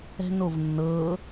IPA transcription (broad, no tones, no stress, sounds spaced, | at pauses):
ɛ̤ n o v nː ɤ